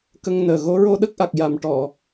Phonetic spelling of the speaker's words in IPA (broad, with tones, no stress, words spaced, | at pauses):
kə˧ŋ nəː˨˩ɣo˧˥ ɹo˧ɗə˦˥k̚ʔa˨˩k̚ja˨˩m ʈɔ˨˩˨